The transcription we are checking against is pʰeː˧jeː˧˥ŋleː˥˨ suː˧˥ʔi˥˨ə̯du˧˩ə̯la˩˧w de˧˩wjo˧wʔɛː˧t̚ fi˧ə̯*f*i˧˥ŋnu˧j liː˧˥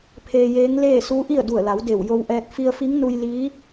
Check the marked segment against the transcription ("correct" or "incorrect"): correct